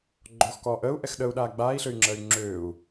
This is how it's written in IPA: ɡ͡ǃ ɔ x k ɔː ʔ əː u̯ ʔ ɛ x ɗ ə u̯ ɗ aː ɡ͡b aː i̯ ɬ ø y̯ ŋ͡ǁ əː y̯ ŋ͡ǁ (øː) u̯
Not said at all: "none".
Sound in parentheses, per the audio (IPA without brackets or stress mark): øː